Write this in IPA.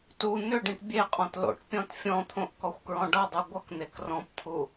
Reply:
tu n̪ʏɖĩʈ bʲeqʼɔ̃t lo̰ʈpʲɔ̃t fʲɔ̃t̪ʰõʔ kɔxʷkɹɔ̃ɖʌdˤu ɡʷʌkn̪ek rɔ̃pt̪ʰu

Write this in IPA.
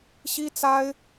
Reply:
ɕi˥t͡sa˥ɪ̯

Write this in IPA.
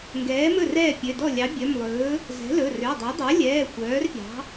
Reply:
ŋɡɛː˩˥mɵ˥˩ rɛː˥˩pʲø˩˧˩dɔ˥˩ lʲɑ˩˥bʲœ˩˧˩mlˠɵː˩˥ | zɛ̤˩˥lɵ˩˧˩rø˩˧˩dˤœ˩˥ dˤo˩˥lʲɛː˩˧˩ xʷœː˩˥rpʲɑ̤˩˥

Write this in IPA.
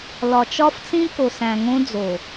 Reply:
lɒ˨t͡ʃɒ˦ft͡sĩ˦ko˨ sæ̃˨ŋõ˦d͡zo˨

